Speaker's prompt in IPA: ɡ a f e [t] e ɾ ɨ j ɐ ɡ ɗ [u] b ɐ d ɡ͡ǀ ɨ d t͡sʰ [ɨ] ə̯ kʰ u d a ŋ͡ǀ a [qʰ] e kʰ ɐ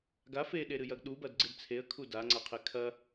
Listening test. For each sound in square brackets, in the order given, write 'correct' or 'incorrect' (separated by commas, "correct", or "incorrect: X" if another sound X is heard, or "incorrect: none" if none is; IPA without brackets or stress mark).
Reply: incorrect: ɗ, correct, incorrect: e, correct